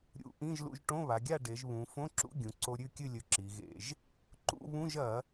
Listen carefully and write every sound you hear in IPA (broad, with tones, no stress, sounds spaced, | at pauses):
ɾʲ ṵ˧˩˧ ʔ ĩ˧˥˧ ʒ l ṵ˧ ʒ ʈ õ˧˥˧ β a˩˧ ɡʲ a˥˨ ɖ e˩˧ ʒ β ũ˩˧ f õ˧˥˧ ǁ ṵ˧˥˧ ɡʲ ũ˩˧ ǀ o˧ ɾʲ ʉ˥˨ kʲ ɨ˥˨ lʲ ɵ˧ ǁ i˩˧ ɣ ḛ˧˩˧ ʒ | ǃ ṵ˧˥˧ β ũ˧˥˧ ʒ ɐ˧˩˧